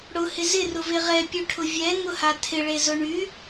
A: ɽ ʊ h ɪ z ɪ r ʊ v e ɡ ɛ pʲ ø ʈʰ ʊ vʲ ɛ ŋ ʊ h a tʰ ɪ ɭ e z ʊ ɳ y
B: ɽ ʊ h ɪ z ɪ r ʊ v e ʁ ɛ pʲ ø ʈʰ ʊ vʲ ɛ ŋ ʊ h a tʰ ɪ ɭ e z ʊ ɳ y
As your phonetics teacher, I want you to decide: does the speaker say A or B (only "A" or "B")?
B